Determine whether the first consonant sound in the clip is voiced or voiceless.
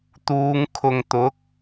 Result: voiceless